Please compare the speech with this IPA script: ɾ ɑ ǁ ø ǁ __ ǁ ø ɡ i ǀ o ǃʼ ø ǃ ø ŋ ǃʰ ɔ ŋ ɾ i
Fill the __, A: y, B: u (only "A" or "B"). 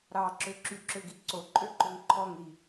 A